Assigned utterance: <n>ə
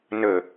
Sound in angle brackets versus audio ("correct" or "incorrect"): correct